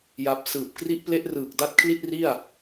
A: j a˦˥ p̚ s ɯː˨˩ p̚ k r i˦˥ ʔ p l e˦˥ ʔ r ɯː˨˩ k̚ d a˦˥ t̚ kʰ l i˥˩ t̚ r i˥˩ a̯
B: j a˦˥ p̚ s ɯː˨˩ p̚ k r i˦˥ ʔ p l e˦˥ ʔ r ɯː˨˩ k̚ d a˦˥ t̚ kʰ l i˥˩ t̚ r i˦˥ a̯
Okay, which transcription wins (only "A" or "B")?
A